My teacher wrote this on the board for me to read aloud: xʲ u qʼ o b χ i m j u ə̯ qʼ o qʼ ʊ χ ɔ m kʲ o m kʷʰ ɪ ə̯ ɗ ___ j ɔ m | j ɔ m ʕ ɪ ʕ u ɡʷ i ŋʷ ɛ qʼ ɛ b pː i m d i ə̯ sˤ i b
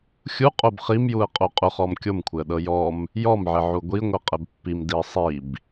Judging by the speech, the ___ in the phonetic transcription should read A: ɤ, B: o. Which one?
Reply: A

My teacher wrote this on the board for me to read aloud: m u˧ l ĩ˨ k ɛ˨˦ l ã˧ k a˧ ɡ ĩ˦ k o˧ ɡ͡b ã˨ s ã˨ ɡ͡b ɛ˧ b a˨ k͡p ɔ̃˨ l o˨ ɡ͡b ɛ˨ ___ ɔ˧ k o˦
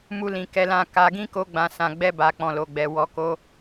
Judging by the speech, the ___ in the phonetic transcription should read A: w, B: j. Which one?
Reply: A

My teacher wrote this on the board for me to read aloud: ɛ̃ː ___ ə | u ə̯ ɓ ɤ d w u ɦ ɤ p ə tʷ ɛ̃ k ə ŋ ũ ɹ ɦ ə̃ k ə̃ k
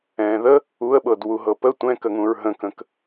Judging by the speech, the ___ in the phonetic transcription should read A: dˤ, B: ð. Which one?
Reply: B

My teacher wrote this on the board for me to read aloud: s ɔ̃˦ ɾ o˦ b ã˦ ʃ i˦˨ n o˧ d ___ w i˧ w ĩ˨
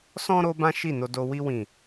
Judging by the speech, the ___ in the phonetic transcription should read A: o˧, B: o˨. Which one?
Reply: A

